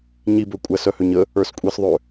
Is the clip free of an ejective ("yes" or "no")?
no